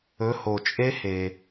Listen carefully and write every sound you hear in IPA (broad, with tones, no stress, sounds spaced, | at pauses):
ɵ˨˦ h o˩ t͡ʃʼ e˦˥ h e˩